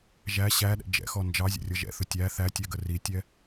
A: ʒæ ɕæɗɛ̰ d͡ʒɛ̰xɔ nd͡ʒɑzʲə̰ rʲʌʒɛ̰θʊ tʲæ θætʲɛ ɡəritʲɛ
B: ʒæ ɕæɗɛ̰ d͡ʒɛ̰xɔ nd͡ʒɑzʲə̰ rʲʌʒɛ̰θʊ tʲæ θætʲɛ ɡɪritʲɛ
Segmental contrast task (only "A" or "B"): A